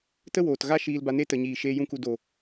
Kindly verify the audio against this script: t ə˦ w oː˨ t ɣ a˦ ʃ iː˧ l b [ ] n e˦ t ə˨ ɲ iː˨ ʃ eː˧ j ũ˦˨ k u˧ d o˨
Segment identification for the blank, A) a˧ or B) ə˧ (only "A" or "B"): A